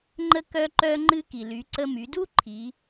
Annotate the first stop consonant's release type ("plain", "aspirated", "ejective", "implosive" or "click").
click